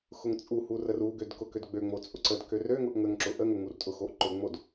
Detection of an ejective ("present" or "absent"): present